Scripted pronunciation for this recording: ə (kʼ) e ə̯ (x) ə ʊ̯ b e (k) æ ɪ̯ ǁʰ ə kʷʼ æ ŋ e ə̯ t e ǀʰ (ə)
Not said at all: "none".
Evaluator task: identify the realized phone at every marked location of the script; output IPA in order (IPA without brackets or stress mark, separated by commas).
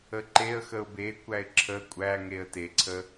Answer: ǃ, x, kʷ, ə